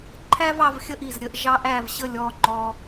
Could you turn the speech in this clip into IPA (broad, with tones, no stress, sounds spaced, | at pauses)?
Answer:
ǃʰ æ˥ v ɑ˩˧ v xʲ ə˥˧ ʔ i˧˩ z ɾʲ ə˥˧ ʔ ʒ ɑ˧ ʔ æ˧˩ v ɕ ə˧˩ lʲ ɔ˧˩ ŋ͡ǃ ɔ˧